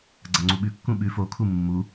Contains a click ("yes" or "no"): yes